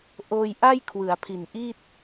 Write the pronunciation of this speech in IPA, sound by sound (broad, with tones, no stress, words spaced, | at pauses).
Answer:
ʔoː˧j ʔa˥˩j kʰwɯ˩˦a̯pʰi˨˩nʔi˥˩t̚